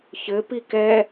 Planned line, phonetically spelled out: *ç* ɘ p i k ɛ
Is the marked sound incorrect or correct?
correct